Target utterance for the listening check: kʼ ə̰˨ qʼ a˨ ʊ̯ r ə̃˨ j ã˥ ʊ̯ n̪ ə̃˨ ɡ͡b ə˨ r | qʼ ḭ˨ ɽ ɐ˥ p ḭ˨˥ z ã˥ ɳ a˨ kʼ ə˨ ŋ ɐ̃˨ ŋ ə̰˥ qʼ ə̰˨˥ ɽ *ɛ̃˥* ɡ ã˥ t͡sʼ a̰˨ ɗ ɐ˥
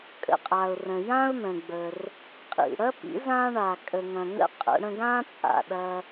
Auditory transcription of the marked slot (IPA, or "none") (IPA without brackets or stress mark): ə̃˥